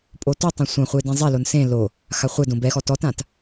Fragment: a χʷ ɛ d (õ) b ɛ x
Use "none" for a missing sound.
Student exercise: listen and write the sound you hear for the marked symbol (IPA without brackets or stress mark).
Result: õ